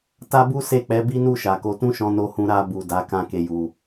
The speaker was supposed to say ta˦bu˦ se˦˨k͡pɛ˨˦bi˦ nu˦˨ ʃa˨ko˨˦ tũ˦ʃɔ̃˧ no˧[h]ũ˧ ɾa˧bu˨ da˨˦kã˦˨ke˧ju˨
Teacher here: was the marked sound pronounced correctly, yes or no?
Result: yes